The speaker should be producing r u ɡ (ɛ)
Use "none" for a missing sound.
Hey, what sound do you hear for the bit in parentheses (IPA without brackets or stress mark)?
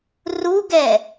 ɛ